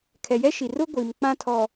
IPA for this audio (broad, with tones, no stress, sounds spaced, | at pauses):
kʰ ɛ˨ j ɛ˦ ʃ i˨ r ʊ˦ ɡʷ iː˨ m k͡p ã˦ tʰ ɔ˨